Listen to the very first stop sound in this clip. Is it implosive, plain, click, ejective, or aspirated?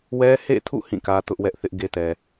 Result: aspirated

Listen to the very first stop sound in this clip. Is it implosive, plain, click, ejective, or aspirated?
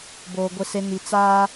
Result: plain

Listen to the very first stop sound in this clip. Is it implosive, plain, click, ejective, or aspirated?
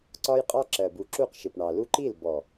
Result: click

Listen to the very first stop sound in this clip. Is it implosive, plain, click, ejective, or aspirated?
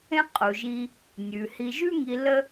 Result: ejective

